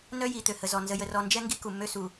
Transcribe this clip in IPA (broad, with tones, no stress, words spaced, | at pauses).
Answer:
nœ˦ji˨ t̪ø˨hə˨ zɔ˨ nzə˨jə˨rɔ˨nd͡ʒɛ˦ ŋɡi˦ku˨mːø˦su˨